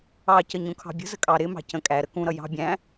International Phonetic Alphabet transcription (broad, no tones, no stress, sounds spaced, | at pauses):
ɑ c ə ɲ ũ kʰ ɑ̤ bʲ ə̤ z ə kʼ ɑ ɾ ɪ m ɑ̤ c ə̃ kʼ æ ɾ ə k ũ ɾ ʌ j ɑ̤ bʲ æ̃